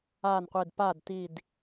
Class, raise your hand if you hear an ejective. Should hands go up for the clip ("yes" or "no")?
no